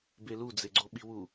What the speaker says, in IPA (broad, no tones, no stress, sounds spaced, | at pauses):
b e l u d͡z e ɡ͡ǀ o ɓ i w u